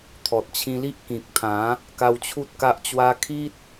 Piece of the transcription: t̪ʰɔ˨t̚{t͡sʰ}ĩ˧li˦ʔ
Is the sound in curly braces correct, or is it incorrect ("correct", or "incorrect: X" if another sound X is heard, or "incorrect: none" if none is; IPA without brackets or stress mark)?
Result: incorrect: t͡ɕʰ